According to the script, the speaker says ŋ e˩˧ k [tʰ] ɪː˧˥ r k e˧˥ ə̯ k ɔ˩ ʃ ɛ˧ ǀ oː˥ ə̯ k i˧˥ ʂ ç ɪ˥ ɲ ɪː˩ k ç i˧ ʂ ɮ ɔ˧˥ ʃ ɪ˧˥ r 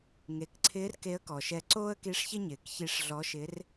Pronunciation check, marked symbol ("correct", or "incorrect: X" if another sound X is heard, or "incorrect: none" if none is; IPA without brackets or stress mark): incorrect: ǀʰ